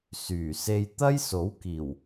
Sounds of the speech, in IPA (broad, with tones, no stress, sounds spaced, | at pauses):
s yː˨˩ s e˧ j t̪ ɐ˥ j s o˨˥ w k iː˨˩ w